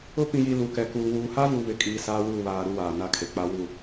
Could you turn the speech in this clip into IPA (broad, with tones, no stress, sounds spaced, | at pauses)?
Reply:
ʊ˦ p ĩ˨ j i˨ l u˨ k ɛ˨ k uː˨ w uː˨ h a˦ v u˨ β ɪ˨ kʼ iː˨ s aː˦ w uː˦˨ β aː˨ ɾ u˦ w aː˨ n a˦˨ kʰ e˨ k͡p a˦ w u˦˨